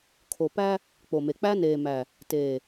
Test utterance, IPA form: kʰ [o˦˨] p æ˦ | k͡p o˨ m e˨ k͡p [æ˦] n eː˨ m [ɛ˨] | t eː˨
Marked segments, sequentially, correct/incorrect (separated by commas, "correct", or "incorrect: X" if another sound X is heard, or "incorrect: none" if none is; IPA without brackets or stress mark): incorrect: o˨, correct, incorrect: æ˨